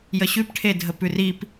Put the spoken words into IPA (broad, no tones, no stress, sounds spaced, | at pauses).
j ə ɕ ʉ p ʈʰ e dʱ ə p ʉ r i p